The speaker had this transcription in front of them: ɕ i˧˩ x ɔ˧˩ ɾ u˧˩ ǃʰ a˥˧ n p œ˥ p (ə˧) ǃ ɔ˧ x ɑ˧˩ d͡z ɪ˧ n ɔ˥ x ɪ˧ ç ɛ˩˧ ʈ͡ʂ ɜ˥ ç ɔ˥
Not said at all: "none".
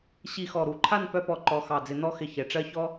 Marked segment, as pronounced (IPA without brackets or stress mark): ɔ˧